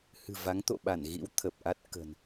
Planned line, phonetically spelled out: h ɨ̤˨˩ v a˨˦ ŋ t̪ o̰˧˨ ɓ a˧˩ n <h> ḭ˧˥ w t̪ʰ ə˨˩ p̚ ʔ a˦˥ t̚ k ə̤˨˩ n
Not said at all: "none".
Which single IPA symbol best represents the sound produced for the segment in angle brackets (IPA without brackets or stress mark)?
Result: ɣ